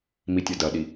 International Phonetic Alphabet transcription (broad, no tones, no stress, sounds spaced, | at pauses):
m i tʲ ɐ d ɐ ɗ i